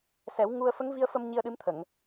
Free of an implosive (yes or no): no